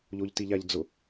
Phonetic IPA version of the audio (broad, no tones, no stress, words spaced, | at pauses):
ʎoʎtiʎaʎd͡zʊ